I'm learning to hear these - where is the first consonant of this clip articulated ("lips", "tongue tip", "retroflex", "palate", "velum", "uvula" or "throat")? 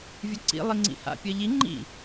lips